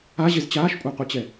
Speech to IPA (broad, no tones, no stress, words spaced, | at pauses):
aʑez t͡ɕaːʃkʷʼaqʷit͡ɕɛ